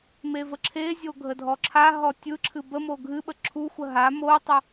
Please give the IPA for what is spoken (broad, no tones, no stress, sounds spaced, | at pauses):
m e v ə ǁʰ e zʲ o ɡʱ ə dʱ ɔ ǁʰ a ɦ ɔ tʲ ɯ ǁʰ ɨ b ə m o ɡʱ ɨ ɓ ə ǁʰ u xʷ ə ɦ a m o tˤ ə